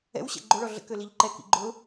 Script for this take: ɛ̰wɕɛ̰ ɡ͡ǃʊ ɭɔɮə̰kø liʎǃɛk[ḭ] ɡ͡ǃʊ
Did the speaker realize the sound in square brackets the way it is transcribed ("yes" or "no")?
yes